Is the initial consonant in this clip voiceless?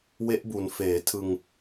no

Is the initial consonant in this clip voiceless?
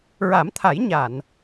no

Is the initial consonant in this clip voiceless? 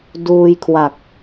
no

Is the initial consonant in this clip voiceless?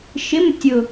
yes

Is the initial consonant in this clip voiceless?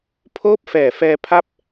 yes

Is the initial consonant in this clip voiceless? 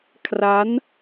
yes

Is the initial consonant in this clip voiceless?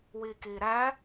no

